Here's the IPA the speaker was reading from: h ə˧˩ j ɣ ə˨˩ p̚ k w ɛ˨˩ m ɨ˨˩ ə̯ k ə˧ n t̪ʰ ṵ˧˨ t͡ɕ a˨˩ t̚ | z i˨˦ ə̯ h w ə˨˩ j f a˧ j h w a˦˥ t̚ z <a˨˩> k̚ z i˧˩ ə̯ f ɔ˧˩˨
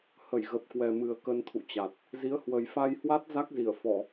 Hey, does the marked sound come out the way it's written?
no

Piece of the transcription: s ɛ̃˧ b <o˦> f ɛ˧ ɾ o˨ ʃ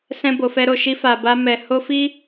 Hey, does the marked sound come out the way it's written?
no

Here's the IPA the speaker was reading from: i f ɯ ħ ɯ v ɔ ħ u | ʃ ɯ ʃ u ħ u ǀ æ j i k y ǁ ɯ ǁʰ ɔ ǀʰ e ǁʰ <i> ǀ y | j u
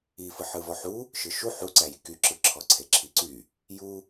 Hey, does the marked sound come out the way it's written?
yes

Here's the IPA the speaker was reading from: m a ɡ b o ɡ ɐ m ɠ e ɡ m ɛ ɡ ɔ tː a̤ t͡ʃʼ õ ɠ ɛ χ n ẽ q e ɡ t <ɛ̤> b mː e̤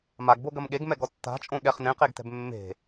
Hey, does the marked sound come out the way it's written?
yes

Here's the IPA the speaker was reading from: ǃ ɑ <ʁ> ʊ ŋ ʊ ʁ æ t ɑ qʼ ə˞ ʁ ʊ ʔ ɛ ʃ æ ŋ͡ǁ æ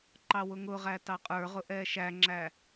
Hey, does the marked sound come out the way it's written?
no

